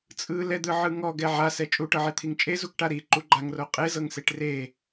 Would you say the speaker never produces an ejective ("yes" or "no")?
no